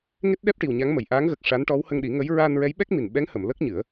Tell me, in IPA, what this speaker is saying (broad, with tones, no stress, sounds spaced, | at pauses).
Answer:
ŋ e˦˥ t̚ ɗ ɛ˦˥ p̚ ʈ i˨˩ w ɲ a˧˥ ŋ m ə˨˩˨ j ʔ aː˧˥ ŋ ɣ ə˨˩ k̚ ʂ a˧˥ n ʈ ɔ˧˥ w h ə˧ ŋ ɗ i˨˩˦ ŋ ə˧˥ j ɹ a˧ n ɹ ɛ˧˥ j ɓ ɛ˦˥ k̚ m i˨˩ n ɓ ɛ˧˥ ŋ h ə˨˩˨ m l ə˦˥ k̚ ɲ ɨ˨˩˦ ə̯